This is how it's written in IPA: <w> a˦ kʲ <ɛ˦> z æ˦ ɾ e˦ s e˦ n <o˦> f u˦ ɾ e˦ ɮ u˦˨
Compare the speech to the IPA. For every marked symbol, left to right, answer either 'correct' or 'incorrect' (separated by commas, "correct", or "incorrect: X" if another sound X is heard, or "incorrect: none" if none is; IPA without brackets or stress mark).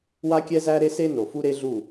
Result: correct, correct, incorrect: o˨